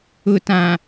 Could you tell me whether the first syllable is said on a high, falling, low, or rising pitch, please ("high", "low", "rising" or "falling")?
low